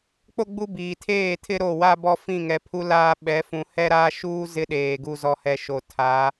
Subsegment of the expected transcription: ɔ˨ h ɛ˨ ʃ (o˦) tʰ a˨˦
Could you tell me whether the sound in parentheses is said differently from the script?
yes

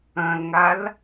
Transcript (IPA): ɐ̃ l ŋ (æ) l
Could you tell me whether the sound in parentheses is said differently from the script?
yes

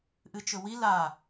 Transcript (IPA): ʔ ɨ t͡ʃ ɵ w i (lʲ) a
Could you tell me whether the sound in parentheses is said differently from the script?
yes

